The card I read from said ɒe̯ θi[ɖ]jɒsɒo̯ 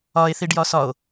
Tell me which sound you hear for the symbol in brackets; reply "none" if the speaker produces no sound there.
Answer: ɖ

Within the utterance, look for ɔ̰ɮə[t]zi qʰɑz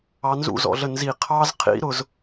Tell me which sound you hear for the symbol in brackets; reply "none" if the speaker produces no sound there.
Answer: n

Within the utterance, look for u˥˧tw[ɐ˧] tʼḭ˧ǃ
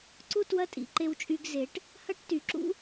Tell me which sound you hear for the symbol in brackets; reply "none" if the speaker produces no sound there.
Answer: ɐ˥˧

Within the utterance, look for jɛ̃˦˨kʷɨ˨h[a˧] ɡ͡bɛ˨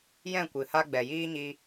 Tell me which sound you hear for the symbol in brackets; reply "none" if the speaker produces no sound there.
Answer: a˧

